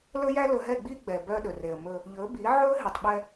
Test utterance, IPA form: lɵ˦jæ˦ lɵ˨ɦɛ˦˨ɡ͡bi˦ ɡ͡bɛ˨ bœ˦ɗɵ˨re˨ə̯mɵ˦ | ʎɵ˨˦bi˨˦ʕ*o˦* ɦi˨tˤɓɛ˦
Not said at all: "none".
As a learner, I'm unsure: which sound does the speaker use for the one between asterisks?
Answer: ɵ˦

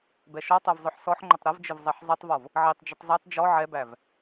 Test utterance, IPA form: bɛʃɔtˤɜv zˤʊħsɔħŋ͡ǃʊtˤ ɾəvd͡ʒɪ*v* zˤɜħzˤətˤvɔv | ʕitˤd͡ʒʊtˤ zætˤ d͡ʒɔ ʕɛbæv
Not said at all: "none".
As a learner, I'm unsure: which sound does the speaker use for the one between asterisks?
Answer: v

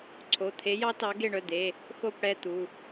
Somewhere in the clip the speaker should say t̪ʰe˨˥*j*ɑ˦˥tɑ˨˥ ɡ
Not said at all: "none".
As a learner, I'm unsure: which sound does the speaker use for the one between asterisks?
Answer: j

